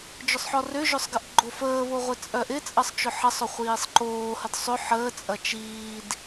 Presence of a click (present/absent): present